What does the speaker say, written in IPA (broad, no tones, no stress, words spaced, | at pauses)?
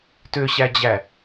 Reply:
tøɕæd͡ʑæ